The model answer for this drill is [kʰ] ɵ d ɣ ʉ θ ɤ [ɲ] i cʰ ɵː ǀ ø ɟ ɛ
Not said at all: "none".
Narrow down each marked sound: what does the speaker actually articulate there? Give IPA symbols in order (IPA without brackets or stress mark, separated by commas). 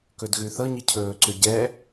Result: k, ɲ